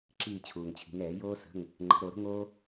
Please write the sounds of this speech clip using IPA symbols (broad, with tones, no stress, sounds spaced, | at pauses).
ǁ iː˦˨ t͡ɕʰ uː˨ ŋ t͡ɕʰ i̤˨˦ ŋ ɛː˨˩˦ j oː˥ s ə̤˧˥˧ ŋ | ŋ͡ǃ ə̤˨˩˦ ɾ o˨˩˦ ɾ ə̤˥ ŋ oː˥